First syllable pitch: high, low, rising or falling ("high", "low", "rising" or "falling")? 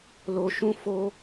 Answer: low